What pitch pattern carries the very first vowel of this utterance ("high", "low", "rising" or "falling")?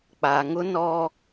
low